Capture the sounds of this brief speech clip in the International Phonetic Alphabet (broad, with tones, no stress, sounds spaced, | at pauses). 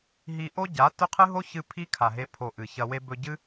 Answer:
ɦ i˧ ʔ o˦ ɟ a˨˦ t ɵ˦ qʰ ɨ˦ ɦ o˦ ç ɨ˧ pʰ i˦ kʰ a˨ ɦ e˧ pʰ o˨ ʔ ɨ˨ ç ɐ˧ w e˧ b ɵ˧ ɟ ɨ˦